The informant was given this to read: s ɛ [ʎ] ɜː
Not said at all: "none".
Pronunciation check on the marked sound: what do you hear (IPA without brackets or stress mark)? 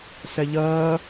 ʎ